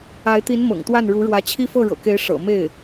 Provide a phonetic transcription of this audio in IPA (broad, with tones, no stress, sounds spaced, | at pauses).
a˧˥ ɪ̯ t̪ i˧˥ n m ɤ̰˨˩ ŋ t̪ w a˥˩ n ɻ u˧˥ ɻ w ä˧˥ t͡ɕʰ i˥ f ɤ˥˩ ɻ ɤ̰˨˩ k e˧˥ ɪ̯ ʂ ɤ̰˨˩ m e˥˩ ɪ̯